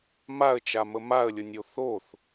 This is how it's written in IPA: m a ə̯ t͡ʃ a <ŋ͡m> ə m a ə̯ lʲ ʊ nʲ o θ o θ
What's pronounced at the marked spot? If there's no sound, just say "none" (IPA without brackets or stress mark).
m